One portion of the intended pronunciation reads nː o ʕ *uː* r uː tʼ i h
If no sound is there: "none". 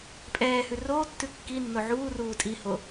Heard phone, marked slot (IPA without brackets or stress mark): uː